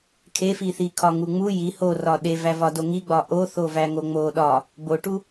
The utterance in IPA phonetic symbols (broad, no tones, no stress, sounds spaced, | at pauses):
kʰ e f i θ i kʰ ɒ ŋ u ŋ͡m u j i h o r ɒ ɗ e v æ v ɒ d o ŋ i ɡ͡b ɒ ʔ o θ o v æ ŋ o ŋ͡m o ɗ ɒ | b o ʈ u